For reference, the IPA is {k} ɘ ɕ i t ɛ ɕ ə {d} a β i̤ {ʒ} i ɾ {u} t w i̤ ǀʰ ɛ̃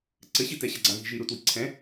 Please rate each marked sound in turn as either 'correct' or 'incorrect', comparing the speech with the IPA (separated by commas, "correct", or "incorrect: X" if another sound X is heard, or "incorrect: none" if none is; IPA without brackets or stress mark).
incorrect: ǀ, incorrect: ɡ͡ǀ, correct, correct